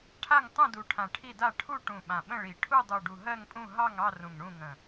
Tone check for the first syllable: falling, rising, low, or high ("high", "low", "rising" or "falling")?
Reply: falling